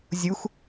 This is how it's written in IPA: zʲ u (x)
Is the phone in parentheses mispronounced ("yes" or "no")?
no